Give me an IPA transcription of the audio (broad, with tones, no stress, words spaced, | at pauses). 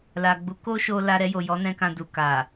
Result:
la˨ɡ͡bu˨˦ ko˦ʃo˧ la˧ɾɛ˧jo˨ jɔ˨˦nɛ̃˧ kã˧du˨ ka˨